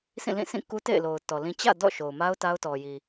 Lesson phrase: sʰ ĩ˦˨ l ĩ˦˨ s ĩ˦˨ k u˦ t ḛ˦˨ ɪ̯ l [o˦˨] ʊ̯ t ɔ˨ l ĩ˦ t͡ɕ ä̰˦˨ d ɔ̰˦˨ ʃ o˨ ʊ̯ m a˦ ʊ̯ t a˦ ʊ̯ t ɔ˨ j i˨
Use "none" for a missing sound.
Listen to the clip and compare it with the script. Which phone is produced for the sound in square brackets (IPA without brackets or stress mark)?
o˨